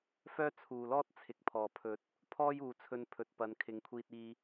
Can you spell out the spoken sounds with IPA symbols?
fœː˥t͡sʰuː˨˩lɔː˥t̚ t͡sʰɪ˨k̚pʰɔː˨˩pʰɵ˨˥t̚ | pʰɔː˥juː˨t͡sʰɵ˧npʰɵ˨t̚ pɐ˨˧nkʰɪ˨˧ŋkʷʰiː˧t̚iː˧

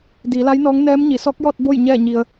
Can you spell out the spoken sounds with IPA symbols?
diː˩˧la˧˥jnɔː˧˥ŋ nɛː˧˥mɲi˩˧ sɔː˧˥k̚jɔː˥˨t̚ bo˥˨j ɲɛː˥˨ɲi˧ə̯

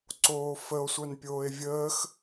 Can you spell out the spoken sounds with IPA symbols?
ǀoːfəo̯ sʷœnpʲoːe̯vʲəːx

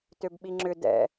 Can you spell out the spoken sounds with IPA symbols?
tøbɓiŋ͡ǁʏ dɛ̰

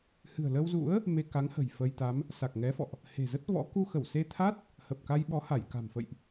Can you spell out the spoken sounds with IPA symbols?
hɨ̤˨˩ə̯lə˧wzṵ˧˥ə̯ | me˧ka˨˦ŋhə̤˨˩j fə˧jt̪a˨˦m | sa˨˩k̚ŋɛ˨˦fɔ̰˧˨ʔ | he̤˨˩zə˦˥t̚vɔ̰˧˥ ku˧xə˧˩wse˧t̪ʰa˦˥t̚ | hə˨˩p̚ka˧jɓɔ˨˦ha˧˩j ka̤˨˩mfə̰˧˨jʔ

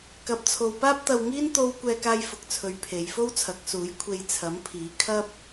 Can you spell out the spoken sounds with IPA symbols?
kɐ˧p̚t͡sʰo˧w paː˥p̚t̪ɐ˧wŋiː˥n t̪o˥w kʷɛː˧kaː˧jfʊ˨k̚t͡sʰɵ˨˧ɥ pʰe˨˧jfo˥wt͡sʰɐ˨˥k̚suː˨˥j kʷʰe˧jt͡sʰɐ˨˥mpʰiː˨˥kʰɐ˥p̚

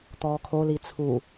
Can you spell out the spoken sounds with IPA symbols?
t̪ɔːkʰoli t͡sʰu

